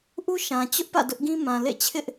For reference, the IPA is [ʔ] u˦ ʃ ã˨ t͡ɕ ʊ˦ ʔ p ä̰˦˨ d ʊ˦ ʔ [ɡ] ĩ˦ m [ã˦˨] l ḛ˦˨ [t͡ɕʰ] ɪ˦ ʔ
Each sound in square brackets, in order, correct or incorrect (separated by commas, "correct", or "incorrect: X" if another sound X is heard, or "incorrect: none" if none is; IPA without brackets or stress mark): correct, correct, incorrect: ã˨, correct